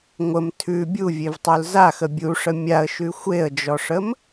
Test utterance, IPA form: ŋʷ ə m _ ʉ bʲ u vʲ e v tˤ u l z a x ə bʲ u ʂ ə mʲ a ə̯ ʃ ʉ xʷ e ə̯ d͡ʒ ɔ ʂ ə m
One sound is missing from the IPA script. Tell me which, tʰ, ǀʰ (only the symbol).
tʰ